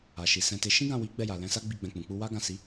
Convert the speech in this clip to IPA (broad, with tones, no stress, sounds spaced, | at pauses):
a˨ ʃ i˨ s ɛ̃˧ t e˧ ʃ ĩ˦ ɡ ã˦˨ w i˨˦ ɡ͡b ɛ˦˨ j a˨ l ɛ̃˧ s a˦ ɡ͡b i˦˨ ɡ͡b ɛ̃˧ k͡p ũ˨ k͡p u˧ w a˦ ɡ ã˦˨ s i˨˦